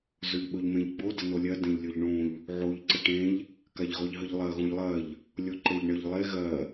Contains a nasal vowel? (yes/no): yes